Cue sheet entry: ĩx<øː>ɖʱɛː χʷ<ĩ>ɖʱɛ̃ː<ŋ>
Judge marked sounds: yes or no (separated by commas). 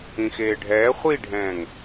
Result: no, no, yes